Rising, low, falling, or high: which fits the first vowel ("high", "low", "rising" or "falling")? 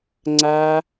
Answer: high